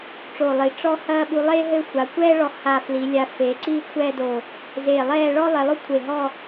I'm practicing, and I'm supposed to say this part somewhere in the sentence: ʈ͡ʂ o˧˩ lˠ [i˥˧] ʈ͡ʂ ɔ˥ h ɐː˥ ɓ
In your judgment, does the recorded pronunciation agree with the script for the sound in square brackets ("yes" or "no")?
no